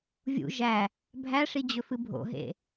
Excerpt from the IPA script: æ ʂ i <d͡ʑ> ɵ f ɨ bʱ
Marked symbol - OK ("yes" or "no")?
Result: yes